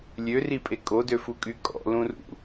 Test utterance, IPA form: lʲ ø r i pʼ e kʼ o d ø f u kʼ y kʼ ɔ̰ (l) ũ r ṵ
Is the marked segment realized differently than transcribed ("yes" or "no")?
no